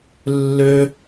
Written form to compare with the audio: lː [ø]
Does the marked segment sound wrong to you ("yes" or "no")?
no